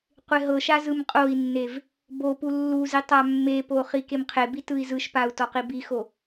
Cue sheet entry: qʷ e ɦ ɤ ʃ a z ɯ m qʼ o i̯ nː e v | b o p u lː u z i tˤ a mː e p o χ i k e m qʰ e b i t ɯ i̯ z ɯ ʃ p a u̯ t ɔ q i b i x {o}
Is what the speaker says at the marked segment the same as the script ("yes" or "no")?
yes